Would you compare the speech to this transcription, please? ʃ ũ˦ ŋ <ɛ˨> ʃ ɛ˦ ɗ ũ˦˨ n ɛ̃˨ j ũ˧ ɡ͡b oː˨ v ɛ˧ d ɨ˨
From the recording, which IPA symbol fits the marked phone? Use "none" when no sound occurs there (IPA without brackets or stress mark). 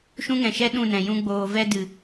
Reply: ɛ̃˨